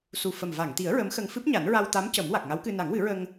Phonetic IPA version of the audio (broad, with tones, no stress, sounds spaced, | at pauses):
s u˨˩ f ə˨˩ m v a˨˩˨ ŋ t̪ i˨˩˦ ə̯ ɹ ə˧˥ m x ə˧ ŋ f ɨ˦˥ p̚ ɲ a˨˩˦ n ɹ a˧ w t̪ a˧˥ m c ə˨˩˦ m w a˨˩ k̚ ŋ a˧˥ w k ɨ˧ n a˨˩˦ ŋ w ɨ˨˩˦ ɹ ə˧ ŋ